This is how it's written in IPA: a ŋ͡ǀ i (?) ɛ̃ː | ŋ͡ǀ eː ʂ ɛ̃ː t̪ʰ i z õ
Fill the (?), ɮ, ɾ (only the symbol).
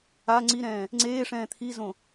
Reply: ɾ